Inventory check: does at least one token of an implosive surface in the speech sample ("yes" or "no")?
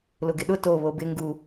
yes